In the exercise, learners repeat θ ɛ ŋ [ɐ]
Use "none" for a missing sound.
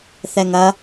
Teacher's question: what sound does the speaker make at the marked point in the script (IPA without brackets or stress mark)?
ɐ